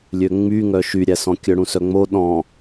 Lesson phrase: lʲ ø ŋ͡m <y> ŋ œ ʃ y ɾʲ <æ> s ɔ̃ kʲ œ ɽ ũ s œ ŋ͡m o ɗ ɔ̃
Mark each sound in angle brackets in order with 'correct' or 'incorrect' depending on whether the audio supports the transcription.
correct, correct

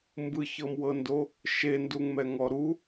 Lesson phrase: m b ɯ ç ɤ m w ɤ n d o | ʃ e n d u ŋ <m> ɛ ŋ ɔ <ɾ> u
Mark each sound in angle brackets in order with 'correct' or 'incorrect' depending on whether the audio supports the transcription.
correct, correct

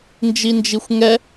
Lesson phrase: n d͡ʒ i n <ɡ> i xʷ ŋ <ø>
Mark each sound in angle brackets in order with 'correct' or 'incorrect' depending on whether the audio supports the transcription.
incorrect, incorrect

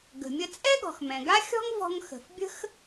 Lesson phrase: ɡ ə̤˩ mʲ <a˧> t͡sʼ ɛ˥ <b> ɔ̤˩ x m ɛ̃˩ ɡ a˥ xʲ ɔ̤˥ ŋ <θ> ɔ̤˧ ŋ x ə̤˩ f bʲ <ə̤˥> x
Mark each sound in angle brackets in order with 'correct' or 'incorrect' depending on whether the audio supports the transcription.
incorrect, incorrect, incorrect, correct

